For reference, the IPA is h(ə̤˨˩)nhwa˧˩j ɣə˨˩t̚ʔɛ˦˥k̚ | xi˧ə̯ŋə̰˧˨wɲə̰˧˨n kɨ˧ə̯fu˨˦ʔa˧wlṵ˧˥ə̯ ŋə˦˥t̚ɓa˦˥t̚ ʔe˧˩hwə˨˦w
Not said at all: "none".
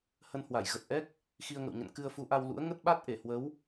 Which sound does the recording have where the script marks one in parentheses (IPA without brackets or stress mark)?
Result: ə˧